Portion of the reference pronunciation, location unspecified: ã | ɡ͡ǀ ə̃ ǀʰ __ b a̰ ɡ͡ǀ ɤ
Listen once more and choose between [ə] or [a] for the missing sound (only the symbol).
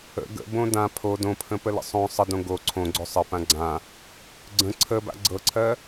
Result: ə